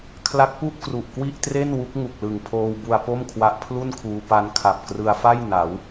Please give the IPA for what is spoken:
kʰla˦˥k̚pu˥˩ʔ kru˨˩ʔkwi˥˩ʔtre˥˩nwu˦˥k̚ ŋu˨˩k̚lɯ˨˩ŋpʰoː˧w bu˧a̯po˥˩mkʰwa˦˥ʔ pʰlu˥˩nkʰuː˧ pa˧nkʰa˨˩p̚ krɯ˧a̯fa˥˩j na˩˦w

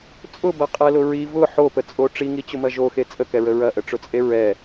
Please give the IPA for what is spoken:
t͡sʼʊbɐqʼɛlʊ ɹi vʊ ħopət͡sʼo ʈ͡ʂiŋit͡ɕʊmɐ ʒoxe t͡sʼəkɛɹə ɹɐʔəʈ͡ʂʊt͡sʼe ɹɛ

